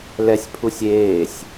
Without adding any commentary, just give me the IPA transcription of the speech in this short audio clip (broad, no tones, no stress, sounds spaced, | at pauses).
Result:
l ɛ sʲ pʰ u sʲ eː sʲ